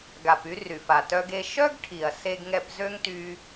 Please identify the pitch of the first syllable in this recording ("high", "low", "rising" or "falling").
low